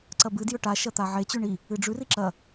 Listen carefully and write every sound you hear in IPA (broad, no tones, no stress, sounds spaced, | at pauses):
ǀ ɐ b ɨ d j ɵ ʈ a ʃ ɐ t̪ a ʕ e t͡ɕ ʉ ɳ i | ɨ ɖ͡ʐ ʉ r i ǁ ɐ